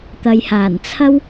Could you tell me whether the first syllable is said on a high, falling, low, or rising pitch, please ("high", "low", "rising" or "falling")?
low